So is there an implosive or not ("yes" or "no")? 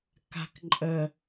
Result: no